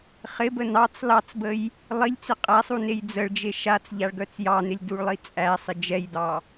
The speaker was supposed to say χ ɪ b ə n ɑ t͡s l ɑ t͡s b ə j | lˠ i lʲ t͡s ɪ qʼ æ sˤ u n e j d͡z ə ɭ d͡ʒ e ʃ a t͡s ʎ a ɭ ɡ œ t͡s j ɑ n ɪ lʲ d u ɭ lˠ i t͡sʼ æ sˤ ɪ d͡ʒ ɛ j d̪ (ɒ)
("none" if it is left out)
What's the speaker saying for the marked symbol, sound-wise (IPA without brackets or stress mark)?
ɑ